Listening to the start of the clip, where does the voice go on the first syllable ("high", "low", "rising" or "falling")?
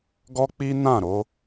high